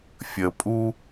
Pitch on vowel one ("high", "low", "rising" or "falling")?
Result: low